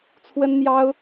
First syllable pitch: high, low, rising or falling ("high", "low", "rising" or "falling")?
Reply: high